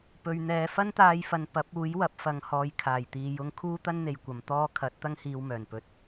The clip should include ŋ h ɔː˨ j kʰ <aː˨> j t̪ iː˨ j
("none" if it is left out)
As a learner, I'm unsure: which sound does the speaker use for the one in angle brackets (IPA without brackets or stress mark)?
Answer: aː˨˩